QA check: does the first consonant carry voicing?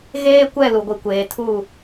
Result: yes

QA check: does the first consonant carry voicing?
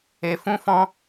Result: no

